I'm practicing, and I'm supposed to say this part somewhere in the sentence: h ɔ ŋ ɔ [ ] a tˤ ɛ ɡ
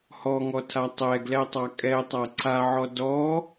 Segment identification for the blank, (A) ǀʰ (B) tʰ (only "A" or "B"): B